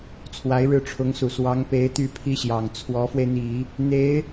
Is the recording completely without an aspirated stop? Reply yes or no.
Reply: no